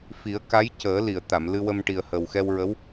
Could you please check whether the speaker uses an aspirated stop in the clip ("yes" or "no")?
no